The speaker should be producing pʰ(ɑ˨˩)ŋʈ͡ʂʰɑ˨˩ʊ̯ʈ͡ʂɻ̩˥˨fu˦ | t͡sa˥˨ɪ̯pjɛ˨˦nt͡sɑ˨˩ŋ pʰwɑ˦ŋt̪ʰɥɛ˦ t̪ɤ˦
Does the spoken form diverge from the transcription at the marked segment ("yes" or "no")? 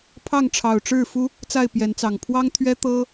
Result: yes